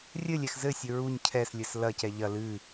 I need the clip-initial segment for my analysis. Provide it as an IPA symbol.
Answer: rʲ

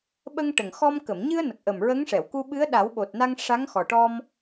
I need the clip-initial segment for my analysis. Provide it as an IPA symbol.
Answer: ɓ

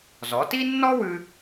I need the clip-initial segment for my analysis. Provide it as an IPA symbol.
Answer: z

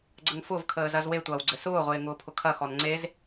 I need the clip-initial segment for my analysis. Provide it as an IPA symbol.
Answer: ɡ͡ǀ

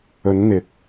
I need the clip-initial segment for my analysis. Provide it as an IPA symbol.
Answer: ɵ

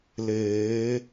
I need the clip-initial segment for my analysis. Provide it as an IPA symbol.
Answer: l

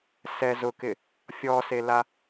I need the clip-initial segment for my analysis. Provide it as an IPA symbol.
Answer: s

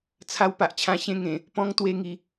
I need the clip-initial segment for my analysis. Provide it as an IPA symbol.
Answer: t͡sʰ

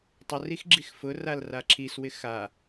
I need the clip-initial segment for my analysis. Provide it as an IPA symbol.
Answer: tˤ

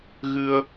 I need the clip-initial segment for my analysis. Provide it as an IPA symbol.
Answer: ɣ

